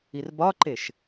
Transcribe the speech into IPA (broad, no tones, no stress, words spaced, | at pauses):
irbɒǃeʃ